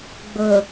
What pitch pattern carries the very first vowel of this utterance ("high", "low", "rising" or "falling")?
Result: low